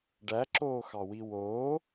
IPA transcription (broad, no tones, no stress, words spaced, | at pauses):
ɖæǁoːxɑwi woː